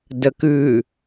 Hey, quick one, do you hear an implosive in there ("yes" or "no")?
no